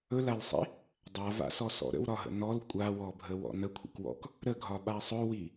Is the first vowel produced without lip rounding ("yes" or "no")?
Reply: no